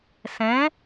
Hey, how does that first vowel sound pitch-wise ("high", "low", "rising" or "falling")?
rising